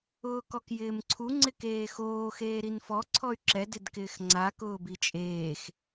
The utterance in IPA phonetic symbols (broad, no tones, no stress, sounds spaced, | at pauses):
ʊː k ɔ k j ɪː m ǀʰ u ŋ͡ǀ ɪ k eː x oː x eː ɾ i n f ɔ ǀʰ ɔ y̯ ǁ ɛ d ɪ d k ɪː x ŋ͡ǀ a k ʊː b i t͡ʃʼ eː x